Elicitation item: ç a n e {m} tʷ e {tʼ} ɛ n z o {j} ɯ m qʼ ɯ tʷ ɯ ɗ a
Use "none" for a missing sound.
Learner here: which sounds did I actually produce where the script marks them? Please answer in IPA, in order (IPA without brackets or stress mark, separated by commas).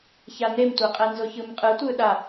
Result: m, qʼ, ç